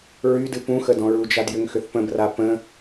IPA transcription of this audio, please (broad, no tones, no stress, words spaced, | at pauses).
ɹydɨ pũ xədɔ̃ɹud͡ʒad jʏŋxʏθpə̃bra pə̃